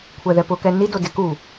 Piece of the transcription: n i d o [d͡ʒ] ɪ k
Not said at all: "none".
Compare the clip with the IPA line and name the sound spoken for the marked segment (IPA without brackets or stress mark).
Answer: d